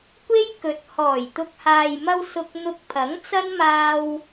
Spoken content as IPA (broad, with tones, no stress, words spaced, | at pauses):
kʷe˥jkɵ˨˥t̚ hɔː˨˩jt̪ʊ˨k̚haː˨jmɐ˧w sʊ˧k̚n̪ʊ˧k̚ pʰɐ˨˥ŋt͡sɐ˥nmaː˧w